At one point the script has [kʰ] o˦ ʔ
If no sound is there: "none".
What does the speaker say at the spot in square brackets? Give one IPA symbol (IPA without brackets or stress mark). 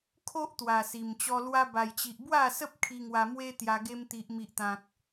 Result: kʰ